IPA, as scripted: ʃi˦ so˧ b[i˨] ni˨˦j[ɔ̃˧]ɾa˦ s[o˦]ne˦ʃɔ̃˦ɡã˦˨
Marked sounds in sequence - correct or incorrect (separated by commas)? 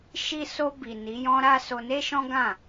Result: correct, incorrect, incorrect